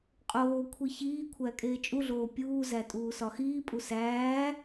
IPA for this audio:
qʼ oː kʷʰ i ç iː kʷʰ æ kʼ eː t͡ʃʼ u ɮ oː pʲ uː z æ tʼ uː s ɒ x iː pʼ u s æː

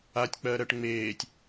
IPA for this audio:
a tʲ k͡p ɜ ɾ ɜ ʈ ŋ͡m eː tʲ

